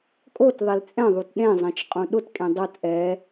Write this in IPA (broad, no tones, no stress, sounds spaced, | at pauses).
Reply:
kʼ o t ðˤ e l t͡sʼ ɛ̃ ðˤ u t ɗ ẽ zˤ ɛ̃ t͡ʃ qʼ ũ ɗ ʊ t kʼ ẽ dˤ o t ʔ ɛ